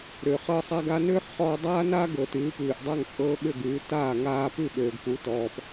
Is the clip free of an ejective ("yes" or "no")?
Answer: no